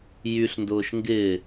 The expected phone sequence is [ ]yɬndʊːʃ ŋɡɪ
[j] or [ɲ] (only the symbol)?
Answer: j